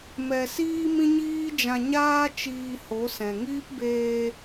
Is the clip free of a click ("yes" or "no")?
yes